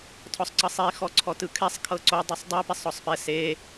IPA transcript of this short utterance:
tʰɔsˤǀɤsˤi xɔǀʰɔtɯkʰɛsˤ kʰɤǀo dˤɛsˤdˤi pesˤɔsˤpɛ se

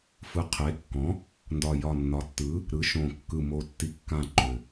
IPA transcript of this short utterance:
fɯ˩˥qʰe˩˥kːɔ̃˩˥ | ndɒ˨˩jɒ˨˩nːɒ˩˥tːɯ˩˥ | ɾɯ˩˥ʃõ˨˩kːɯ˨˩ mo˨˩tːi˨˩ kːã˨˩ ǃʏ˨˩

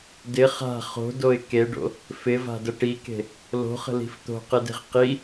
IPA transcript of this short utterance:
dɪ χa̤ χo̤doɪ̯ keɖo̰ | fɪva̤də ʈike̤ | lo̤χə̤li̤f t̪o̤qɘde̤ʁ qi

